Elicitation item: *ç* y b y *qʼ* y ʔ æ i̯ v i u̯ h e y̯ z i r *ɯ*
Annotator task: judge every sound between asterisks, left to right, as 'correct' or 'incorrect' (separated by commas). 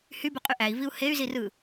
incorrect, correct, correct